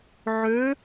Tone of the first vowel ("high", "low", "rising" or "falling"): rising